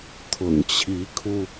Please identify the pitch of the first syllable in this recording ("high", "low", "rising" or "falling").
low